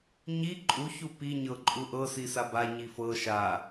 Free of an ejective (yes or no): no